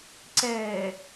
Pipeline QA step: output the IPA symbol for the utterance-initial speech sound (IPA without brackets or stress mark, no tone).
ǀ